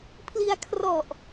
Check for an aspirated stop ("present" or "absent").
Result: present